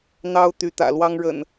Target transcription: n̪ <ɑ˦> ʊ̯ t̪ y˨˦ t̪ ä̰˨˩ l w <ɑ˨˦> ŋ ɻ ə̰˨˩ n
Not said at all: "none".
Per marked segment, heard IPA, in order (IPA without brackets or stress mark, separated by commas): ɑ˦, ɑ˦